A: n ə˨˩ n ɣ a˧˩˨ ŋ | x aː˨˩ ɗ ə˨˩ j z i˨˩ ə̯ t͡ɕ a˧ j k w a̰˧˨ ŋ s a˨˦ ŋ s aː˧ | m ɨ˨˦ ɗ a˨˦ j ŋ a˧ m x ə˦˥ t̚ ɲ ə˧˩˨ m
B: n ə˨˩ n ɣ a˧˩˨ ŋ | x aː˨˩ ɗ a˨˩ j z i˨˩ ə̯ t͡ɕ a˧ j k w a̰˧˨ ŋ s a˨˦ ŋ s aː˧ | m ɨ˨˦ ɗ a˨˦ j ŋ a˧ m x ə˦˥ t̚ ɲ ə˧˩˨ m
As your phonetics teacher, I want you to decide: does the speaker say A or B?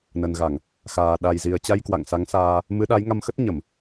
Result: B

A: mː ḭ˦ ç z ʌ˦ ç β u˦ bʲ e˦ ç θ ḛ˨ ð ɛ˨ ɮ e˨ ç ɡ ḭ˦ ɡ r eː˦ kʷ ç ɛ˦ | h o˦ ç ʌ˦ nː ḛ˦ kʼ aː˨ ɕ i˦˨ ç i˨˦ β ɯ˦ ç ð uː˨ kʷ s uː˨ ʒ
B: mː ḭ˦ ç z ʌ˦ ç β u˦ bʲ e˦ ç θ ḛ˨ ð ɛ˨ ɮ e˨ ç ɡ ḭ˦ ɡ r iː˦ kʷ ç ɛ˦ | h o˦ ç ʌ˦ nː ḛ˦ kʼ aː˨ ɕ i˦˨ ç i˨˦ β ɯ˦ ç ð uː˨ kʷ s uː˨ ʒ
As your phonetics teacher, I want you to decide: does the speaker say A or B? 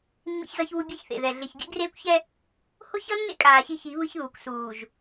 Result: A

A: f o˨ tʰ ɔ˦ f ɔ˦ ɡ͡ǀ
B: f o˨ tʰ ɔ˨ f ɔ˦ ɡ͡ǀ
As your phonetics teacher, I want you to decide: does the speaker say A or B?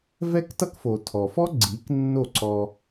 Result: B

